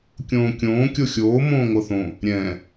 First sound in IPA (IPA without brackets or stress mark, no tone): kʲ